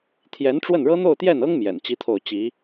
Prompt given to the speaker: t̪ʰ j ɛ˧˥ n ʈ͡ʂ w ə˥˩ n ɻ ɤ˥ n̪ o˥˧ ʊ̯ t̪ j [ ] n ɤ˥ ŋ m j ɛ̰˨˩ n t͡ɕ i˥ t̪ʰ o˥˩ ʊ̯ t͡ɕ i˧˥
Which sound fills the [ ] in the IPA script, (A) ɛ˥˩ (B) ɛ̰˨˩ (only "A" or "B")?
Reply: A